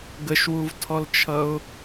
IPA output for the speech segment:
ɡ ə ʃ w u v tʰ ɔ l t͡ʃʰ ʌ ʊ̯

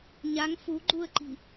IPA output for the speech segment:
ɲ a ŋ f u ɡ͡ǃ u ə̯ ǃ i̤

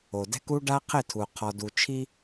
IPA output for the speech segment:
o˨ d ɛ̤˦ k u˦ ɖ a˦ qʰ ɪ˦˨ tʰ u˨ qʰ ɔ˨ d u˨ t͡ʃʰ i˦

